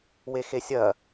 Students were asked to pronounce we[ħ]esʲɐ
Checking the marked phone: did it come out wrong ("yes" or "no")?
yes